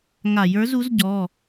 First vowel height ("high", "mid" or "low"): low